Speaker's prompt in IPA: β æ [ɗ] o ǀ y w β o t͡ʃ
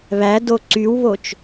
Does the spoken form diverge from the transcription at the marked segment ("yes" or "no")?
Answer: yes